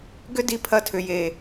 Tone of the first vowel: high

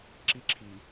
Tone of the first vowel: high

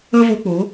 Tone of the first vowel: high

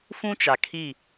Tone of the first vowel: high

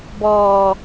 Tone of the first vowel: low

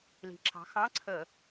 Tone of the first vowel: rising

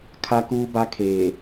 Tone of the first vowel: high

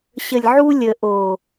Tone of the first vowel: low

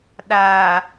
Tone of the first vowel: low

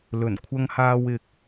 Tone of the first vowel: low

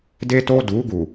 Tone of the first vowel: high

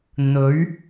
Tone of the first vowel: rising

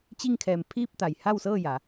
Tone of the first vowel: falling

